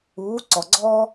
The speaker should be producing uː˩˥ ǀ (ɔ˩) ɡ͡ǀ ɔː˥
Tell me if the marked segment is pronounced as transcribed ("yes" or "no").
yes